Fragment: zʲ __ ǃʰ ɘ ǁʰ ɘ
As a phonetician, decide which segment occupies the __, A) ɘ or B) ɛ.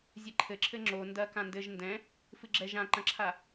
A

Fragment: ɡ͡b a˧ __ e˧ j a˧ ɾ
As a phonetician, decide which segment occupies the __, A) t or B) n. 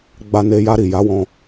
B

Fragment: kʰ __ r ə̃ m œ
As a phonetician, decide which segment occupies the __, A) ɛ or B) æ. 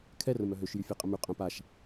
A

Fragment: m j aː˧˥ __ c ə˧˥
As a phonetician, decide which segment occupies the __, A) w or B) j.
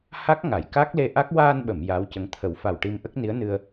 A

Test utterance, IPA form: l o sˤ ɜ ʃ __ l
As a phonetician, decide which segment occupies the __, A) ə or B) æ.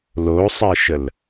A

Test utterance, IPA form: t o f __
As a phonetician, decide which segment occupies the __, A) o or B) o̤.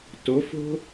B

